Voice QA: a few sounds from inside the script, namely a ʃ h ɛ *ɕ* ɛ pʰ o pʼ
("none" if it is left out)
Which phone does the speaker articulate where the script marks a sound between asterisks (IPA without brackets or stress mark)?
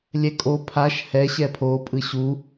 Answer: ɕ